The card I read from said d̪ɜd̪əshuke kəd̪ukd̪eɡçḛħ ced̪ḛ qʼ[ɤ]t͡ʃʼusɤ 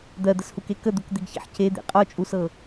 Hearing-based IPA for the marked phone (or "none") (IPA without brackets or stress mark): ɔ